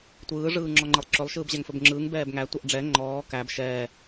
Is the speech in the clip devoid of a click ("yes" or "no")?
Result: no